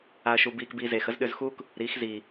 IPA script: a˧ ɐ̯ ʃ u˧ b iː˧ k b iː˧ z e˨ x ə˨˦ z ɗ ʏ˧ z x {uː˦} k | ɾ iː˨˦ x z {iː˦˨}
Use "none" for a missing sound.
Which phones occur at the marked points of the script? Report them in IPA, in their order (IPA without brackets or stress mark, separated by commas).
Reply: uː˦, iː˨